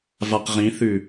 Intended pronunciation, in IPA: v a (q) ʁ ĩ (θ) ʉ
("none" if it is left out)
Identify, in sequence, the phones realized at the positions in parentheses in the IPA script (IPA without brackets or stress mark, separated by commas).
q, θ